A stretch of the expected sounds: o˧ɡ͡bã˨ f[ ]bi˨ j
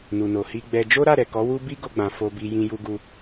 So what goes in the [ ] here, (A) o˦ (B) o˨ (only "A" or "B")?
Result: B